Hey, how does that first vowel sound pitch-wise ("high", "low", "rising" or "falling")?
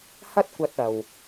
high